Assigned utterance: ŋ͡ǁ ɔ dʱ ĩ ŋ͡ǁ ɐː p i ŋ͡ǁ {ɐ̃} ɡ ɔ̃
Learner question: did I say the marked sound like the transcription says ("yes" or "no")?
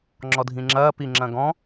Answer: yes